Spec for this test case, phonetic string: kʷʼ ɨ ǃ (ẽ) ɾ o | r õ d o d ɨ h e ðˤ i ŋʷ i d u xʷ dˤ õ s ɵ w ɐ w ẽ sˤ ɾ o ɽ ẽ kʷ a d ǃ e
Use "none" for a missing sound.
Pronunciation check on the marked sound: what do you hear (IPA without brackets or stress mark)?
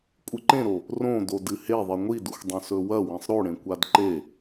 ẽ